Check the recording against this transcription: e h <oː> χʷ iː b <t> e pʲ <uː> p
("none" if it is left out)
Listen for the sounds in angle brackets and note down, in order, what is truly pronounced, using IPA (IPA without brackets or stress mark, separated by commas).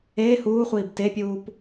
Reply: uː, t, uː